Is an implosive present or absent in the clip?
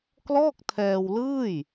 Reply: absent